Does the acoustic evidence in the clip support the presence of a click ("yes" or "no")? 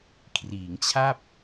no